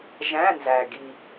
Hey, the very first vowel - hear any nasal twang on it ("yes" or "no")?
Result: yes